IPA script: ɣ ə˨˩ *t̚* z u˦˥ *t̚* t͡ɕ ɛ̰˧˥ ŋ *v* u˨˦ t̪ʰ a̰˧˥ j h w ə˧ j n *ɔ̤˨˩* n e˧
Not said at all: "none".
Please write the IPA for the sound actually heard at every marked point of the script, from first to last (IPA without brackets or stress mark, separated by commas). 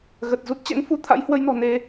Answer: t̚, t̚, f, ɔ̤˨˩